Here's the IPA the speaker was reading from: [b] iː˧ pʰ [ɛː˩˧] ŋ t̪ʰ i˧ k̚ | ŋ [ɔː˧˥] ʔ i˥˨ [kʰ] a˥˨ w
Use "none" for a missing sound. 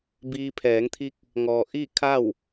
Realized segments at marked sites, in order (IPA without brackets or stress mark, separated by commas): b, ɛː˩˧, ɔː˩, kʰ